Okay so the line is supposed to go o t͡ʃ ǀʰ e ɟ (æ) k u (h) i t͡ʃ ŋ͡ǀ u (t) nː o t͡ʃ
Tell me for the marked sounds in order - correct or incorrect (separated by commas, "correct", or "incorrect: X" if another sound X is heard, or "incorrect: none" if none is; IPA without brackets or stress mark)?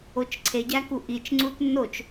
correct, incorrect: ʔ, correct